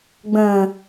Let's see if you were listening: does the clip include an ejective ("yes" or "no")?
no